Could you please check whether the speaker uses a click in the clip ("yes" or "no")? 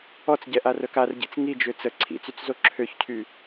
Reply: yes